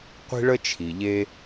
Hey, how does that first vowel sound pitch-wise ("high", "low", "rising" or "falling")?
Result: high